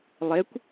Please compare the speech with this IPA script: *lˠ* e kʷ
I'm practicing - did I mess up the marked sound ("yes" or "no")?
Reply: no